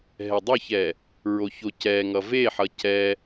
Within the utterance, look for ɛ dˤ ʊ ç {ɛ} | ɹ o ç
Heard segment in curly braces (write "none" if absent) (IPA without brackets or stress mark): ɛ